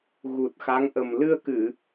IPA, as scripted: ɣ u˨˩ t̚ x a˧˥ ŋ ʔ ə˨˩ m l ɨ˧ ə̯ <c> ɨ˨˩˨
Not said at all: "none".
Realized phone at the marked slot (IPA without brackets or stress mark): k